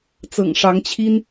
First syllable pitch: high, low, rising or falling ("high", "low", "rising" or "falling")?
low